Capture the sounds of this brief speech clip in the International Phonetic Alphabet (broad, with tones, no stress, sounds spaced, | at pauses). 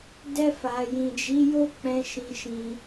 d ɛ˧ f a˨ j ĩ˨ d͡ʒ i˨˦ j o˦ k͡p ɛ̃˧ ʃ ĩ˧ ʃ ĩ˧